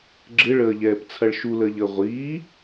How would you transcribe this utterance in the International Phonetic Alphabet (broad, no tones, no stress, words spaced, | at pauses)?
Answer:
ɡ͡ǁɪɭəːʎɛːp t͡sʰɐɭʃuləːʎəː ʁʷiː